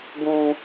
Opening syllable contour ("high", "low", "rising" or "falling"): high